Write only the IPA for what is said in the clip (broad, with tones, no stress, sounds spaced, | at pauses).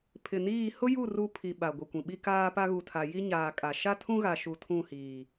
pʰ ɪ˨ n iː˦˨ h ʊ˦ j u˦˨ r u˦ pʰ i˨ ɓ a˨ ɡʷ i˨ kʷ ĩ˨ ɓ i˦ k aː˦ p a˦ ɣ u˨ tʰ a˨ j i˦ ɲ aː˨ kʼ a˨ ʃ a˦ tʰ ũ˦ ɣ a˨ ʃ u˨ tʰ ũ˦˨ h iː˨